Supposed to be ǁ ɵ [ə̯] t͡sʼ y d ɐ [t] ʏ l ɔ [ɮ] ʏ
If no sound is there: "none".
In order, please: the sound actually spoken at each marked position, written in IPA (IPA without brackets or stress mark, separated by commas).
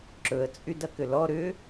ə̯, k, ɾ